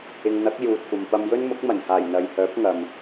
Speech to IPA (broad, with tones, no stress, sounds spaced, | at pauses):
ɪ˧ ŋ n̪ ɐ˨˥ k̚ j uː˨ t̚ kʷ ɐ˨ m p ɐ˧ m j ɵ˥ n m ʊ˨˥ k̚ m ɐ˨˩ n h aː˨˩ j n̪ ɐ˨ j h œː˨˥ p̚ ŋ ɐ˨ m